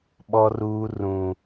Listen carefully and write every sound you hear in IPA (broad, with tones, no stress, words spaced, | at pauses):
ɓɔ˦ruː˦ rũ˦